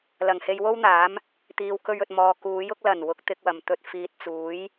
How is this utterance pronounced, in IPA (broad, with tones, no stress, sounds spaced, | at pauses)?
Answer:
l ɐ˨˩ ŋ h e˧ j w o˥ w n̪ aː˨˥ m | t̪ iː˨ w k ɵ˧ ɥ ɵ˨ t̚ m ɔː˨ k uː˨˥ j ʊ˥ k̚ l ɐ˨˩ n w ʊ˨˥ k̚ t̪ ɪ˧ k̚ w ɐ˨˩ m t̪ ɵ˧ t̚ f iː˨ t̚ t͡s uː˨˥ j